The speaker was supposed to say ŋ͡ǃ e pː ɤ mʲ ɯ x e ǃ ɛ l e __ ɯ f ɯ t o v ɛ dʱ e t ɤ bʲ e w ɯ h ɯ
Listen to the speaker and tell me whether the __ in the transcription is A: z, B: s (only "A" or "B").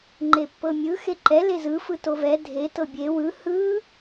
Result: A